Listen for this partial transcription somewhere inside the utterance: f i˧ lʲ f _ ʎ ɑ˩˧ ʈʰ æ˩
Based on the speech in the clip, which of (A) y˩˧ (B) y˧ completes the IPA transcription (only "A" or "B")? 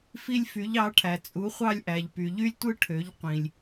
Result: A